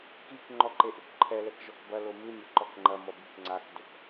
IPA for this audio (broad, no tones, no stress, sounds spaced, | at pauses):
k i k ŋ͡ǃ ɔ ǃ e ʔ u k ǃʰ ɛ l ɛ k ʒ ɔ k b ɐ l o m ɨ mʲ ɘ ǃ ɔ k ŋ͡ǃ ɐ m ɔ b ɨ k ŋ͡ǀ a k d o k